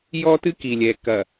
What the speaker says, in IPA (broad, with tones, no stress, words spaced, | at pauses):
jɔ˦tɨ˦ki˨lʲɛ˨ kɐ˨